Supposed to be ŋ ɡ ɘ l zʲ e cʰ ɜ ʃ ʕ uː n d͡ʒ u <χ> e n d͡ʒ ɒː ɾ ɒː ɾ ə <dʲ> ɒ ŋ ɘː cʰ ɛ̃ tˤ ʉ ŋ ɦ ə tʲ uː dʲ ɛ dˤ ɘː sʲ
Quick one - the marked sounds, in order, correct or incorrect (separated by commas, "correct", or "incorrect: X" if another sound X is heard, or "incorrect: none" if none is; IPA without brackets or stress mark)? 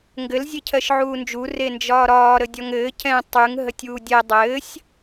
incorrect: r, correct